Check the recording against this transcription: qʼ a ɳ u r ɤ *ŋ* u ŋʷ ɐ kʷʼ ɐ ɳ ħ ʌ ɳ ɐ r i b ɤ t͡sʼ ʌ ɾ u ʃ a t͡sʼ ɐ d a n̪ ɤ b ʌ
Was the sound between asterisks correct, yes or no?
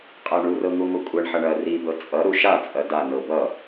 yes